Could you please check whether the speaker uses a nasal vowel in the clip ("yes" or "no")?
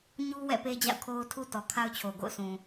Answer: yes